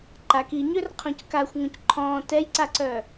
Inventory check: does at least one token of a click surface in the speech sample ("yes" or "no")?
yes